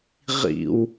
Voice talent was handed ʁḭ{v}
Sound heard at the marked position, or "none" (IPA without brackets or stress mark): w